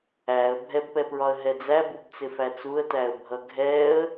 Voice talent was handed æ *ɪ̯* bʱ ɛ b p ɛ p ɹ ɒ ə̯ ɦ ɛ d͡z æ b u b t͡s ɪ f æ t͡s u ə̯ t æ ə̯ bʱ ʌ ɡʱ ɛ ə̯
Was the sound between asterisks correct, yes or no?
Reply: no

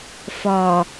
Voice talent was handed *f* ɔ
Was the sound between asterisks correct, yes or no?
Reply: yes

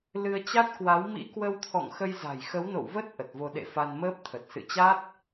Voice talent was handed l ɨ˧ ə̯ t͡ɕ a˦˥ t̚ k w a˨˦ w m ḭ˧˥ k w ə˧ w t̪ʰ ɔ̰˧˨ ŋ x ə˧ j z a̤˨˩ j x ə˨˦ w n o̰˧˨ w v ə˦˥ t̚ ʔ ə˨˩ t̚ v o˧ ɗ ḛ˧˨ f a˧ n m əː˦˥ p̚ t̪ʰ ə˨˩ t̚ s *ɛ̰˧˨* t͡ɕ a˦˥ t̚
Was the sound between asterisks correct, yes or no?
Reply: no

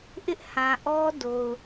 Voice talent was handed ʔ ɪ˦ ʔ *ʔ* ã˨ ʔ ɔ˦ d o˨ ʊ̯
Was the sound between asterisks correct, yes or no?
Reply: no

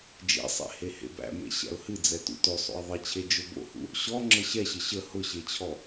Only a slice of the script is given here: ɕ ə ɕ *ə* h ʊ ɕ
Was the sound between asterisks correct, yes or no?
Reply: yes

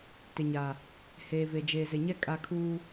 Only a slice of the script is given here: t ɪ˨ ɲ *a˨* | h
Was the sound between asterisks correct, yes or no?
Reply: yes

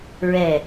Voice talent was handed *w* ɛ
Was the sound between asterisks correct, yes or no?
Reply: no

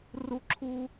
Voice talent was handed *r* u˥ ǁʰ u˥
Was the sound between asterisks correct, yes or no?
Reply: yes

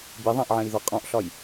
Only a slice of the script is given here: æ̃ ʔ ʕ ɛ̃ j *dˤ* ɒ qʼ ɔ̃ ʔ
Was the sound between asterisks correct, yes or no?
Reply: no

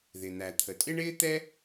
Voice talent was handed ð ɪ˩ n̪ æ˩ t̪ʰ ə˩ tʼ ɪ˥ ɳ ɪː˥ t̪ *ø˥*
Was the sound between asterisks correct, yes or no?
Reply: no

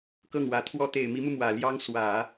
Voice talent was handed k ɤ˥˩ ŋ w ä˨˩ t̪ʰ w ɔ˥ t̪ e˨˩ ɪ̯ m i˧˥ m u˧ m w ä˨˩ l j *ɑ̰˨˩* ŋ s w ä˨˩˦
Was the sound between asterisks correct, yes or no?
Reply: no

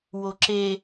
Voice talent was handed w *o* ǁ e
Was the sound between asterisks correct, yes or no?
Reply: yes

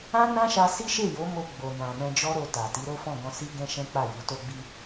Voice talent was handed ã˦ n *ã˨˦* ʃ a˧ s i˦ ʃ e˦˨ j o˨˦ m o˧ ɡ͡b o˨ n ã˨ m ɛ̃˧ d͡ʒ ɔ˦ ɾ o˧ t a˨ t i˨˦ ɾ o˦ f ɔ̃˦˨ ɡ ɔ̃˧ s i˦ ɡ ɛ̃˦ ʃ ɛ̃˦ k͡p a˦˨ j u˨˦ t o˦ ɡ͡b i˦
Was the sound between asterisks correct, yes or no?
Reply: no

